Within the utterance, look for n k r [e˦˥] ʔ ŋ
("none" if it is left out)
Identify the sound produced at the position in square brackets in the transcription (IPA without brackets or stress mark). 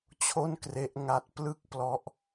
e˦˥